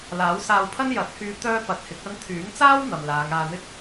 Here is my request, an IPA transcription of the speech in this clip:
l aː˨˥ w s aː˧ w pʰ ɐ˥ n j ɐ˨˥ t̚ h yː˧ t̪ œː˥ p ɐ˨˥ t̚ h ɪ˨˥ k̚ ɐ˧ n t̪ʰ yː˨˥ ŋ t͡s aː˥ w n̪ ɐ˨ m l aː˨˧ ŋ aː˧ n̪ ɪ˥ k̚

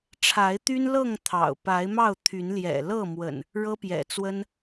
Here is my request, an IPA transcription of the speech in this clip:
ʈ͡ʂʰ a˨˦ ɪ̯ t̪ y˦ n l ɤ˥˨ ŋ t̪ʰ ɑ̰˨˩ ʊ̯ p a˨˦ ɪ̯ m ɑ˥˨ ʊ̯ t̪ʰ y˨˦ n l j ɛ̰˨˩ l ɤ˥˨ m w ə̰˨˩ n | ɻ ɤ˦ p j ɛ̰˨˩ t͡s w ə˦ n

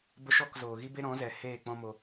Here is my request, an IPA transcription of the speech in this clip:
b ə˧ ʃ ɔ˦˨ k z oː˨ ɣ i˦ b e˦ ɾ ɔ̃˨˦ z ɛ˨ h eː˦˨ k͡p ɔ̃˦ m o˧

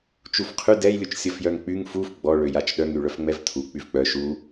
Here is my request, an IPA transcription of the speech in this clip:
t͡ʃ u f qʰ y d ɛ j lʲ u t͡ʃ sʲ ɔ f j œ ŋ k͡p y ŋ f u f ɡ͡b ɔ ɭ ø j a t͡ʃ ɗ œ ŋ y ɭ œ f ŋ͡m ɛ v tʰ u k͡p y v k͡p œ ʃ u

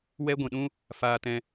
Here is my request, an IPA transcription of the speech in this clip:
w ɛ˦ ɡʷ ĩ˨ ɗ ũ˦ | f aː˧ t ɛ̃˧

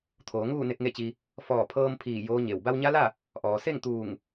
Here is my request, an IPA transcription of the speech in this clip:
t̪ʰ oː˩˧ ŋ uː˥˨ n e˧ k̚ ŋ e˥˨ t͡ɕ i˧ | f ɔː˧˩ pʰ ɤː˧ m pʰ iː˧˩ j oː˧˥ ɲ e˧˩ w b a˧ w ɲ a˧˥ l a˥˨ | ʔ ɔː˩ s e˥˨ ŋ t̪ uː˧˩ ŋ

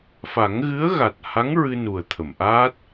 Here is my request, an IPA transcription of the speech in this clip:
f a˨˩˦ ŋ ɣ ɨ˧˥ ə̯ ɣ a˨˩ t̚ h a˧˥ ŋ ɹ ɨ˧ n u˨˩ ə̯ t̪ʰ ə˨˩˨ m ʔ aː˦˥ t̚

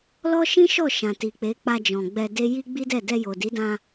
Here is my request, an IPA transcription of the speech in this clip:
l ɔ˦ ʃ ĩ˦ ʃ ɔ˦˨ ʃ ã˨ t i˨ k͡p e˨˦ k͡p a˧ d͡ʒ ɔ̃˨ ɡ͡b ɛ˧ d e˦ j i˦ ɡ͡b i˦ d ɛ˦˨ d ɛ˧ j o˨ d i˨˦ d ã˧

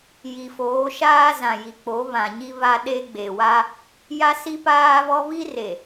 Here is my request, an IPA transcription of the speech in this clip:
j i˨ f oː˨˦ ʃ aː˦ z ã˨ j i˨ k͡p o˨˦ β ã˨ ɲ i˦ β a˦ ɗ e˦ ɡ͡b e˨ w a˦ | j a˦ s i˦ p aː˦ β ɔ˦ β i˦ r e˨

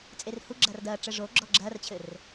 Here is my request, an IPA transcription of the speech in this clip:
t͡sʼ e r h u ɡ͡ǁ ɐː r d ɐː ʈ͡ʂ ɘ ʐ o ɡ͡ǁ ɔ ɡ͡ǁ ɐː r t͡ɕʰ ɘ r

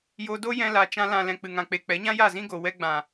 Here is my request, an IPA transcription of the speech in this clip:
j o˧ d o˦ j ɛ̃˧ l a˨ t͡ʃ ã˧ l ã˨ l ɛ̃˨ k͡p ɨ˨ ŋ ã˨ k͡p e˨ k͡p ɛ˨˦ ɲ ã˦ j a˦˨ z ĩ˦ ɡ o˨ w ɛ˧ ɡ͡b ã˨

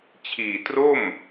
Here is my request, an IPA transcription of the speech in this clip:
t͡ɕʰ iː˨˩ t r o˥˩ m

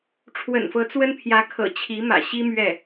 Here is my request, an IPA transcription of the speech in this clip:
ʈ͡ʂʰ w ə̰˨˩ n f ɤ˧˥ t͡s w ə˥ n pʰ j ä˧˥ kʰ ɤ̰˨˩ t͡ɕʰ i˧˥ m ä̰˨˩ ɕ i˥ m ɥ ɛ˥˩

